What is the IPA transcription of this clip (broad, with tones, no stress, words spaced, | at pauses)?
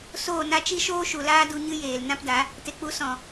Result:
soː˦˨na˦ t͡ʃi˦ʃoː˦ʃu˨laː˦ du˧ɲɨ˦jeː˨l nã˦pda˨˦ | te˨k͡pu˨˦ sɔ̃˨